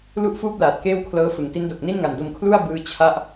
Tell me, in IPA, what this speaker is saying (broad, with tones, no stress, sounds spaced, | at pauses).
l u˥˩ ʔ f uː˥˩ p̚ l aː˨˩ t̚ k eː˥˩ w kʰ l ɤː˦˥ f ɯ˩˦ ŋ t i˦˥ n d o˨˩ k̚ n i˥˩ n ŋ a˨˩ n d o˧ m kʰ l u˥˩ a̯ b ɯː˦˥ t͡ɕʰ a˥˩ ʔ